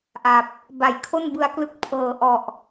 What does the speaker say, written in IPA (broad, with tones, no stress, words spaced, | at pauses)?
ʔa˨˩p̚ | ba˩˦jkʰo˥˩nbɯ˧a̯klɯ˦˥k̚ pʰɤː˨˩ʔɔ˨˩ʔ